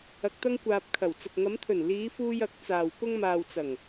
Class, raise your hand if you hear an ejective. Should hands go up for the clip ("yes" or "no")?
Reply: no